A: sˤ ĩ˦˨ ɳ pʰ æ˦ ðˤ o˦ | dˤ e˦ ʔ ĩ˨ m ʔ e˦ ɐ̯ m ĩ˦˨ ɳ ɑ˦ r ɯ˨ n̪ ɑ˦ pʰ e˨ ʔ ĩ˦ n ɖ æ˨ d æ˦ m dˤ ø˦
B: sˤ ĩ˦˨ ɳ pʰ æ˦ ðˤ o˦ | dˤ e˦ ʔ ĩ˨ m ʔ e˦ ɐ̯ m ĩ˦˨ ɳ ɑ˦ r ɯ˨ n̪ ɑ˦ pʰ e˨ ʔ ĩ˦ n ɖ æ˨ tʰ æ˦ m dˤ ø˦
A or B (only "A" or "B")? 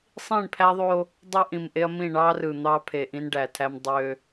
B